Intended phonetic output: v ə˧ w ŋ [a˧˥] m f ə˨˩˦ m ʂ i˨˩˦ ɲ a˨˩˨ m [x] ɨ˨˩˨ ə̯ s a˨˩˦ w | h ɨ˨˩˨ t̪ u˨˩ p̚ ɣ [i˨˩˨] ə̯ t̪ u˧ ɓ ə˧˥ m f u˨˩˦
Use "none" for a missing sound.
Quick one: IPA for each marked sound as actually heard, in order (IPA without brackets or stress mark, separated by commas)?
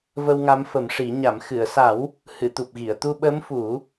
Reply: a˧˥, x, i˨˩˨